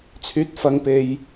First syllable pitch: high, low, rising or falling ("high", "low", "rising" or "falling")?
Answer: rising